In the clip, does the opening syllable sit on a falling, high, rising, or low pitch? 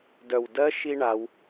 low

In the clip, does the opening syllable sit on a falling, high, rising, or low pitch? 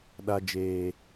low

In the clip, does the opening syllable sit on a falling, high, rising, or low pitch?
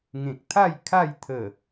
low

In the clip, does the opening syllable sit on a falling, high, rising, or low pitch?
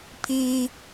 high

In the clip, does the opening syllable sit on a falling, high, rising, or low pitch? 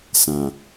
low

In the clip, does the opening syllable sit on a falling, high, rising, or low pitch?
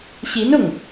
rising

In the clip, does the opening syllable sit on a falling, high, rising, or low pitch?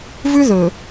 high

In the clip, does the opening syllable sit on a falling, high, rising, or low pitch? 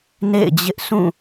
falling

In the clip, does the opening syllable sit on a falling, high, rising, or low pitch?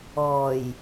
low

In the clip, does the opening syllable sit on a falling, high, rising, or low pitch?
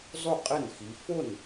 falling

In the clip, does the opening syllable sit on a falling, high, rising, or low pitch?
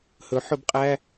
rising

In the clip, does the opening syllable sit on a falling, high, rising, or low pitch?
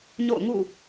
falling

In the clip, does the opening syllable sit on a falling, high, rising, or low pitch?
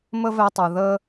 high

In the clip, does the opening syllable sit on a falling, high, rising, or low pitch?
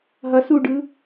rising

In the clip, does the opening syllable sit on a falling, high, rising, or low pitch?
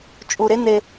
low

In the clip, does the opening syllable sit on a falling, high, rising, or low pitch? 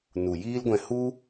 low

